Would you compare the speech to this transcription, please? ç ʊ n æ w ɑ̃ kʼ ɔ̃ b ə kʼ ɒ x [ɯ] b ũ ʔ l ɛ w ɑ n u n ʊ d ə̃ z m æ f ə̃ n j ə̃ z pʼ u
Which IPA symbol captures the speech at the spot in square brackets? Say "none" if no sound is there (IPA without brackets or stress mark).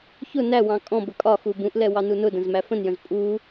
u